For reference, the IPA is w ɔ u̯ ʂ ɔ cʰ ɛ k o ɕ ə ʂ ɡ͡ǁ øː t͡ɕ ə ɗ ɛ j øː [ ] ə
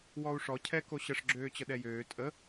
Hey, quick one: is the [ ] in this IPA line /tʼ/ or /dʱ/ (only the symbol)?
tʼ